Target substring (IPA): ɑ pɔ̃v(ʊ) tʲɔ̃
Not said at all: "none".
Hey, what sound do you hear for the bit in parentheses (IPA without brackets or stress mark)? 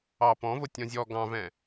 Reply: ʊ